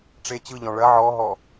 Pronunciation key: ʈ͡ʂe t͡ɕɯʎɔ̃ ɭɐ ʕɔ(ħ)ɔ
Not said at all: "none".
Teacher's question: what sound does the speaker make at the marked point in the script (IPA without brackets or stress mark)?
ɦ